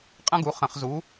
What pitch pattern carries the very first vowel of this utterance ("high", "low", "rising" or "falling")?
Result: high